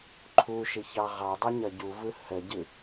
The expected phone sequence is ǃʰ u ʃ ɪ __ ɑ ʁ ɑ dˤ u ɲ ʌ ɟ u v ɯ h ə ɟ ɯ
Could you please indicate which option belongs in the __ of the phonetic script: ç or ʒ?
ç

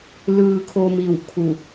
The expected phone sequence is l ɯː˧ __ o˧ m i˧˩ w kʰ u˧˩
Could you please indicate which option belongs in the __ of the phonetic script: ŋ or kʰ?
kʰ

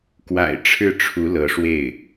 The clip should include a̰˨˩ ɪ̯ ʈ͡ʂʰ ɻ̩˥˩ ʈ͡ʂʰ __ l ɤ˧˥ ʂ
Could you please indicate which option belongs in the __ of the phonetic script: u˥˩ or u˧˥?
u˧˥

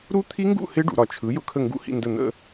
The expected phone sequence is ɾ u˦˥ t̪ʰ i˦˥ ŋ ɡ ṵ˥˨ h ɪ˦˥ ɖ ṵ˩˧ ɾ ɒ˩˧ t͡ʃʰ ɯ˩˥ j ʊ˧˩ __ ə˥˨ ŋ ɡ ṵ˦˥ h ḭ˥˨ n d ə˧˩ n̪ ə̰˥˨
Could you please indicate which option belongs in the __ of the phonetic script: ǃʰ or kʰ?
kʰ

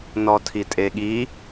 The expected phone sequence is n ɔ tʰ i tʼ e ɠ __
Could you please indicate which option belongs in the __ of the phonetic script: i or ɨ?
i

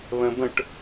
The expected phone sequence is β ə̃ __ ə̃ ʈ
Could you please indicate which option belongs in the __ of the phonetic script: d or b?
b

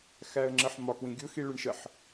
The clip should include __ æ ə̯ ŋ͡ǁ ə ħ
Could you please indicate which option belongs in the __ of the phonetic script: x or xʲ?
x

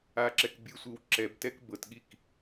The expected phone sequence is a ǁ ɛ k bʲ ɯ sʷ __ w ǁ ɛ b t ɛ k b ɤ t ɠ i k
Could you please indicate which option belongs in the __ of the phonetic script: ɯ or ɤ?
ɯ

